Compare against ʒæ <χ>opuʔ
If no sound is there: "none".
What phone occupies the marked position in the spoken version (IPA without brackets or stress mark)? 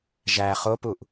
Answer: χ